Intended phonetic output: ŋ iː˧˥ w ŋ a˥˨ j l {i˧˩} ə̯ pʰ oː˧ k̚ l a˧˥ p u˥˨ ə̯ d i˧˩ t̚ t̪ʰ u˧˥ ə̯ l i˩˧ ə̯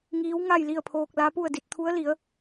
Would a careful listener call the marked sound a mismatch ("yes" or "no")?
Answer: yes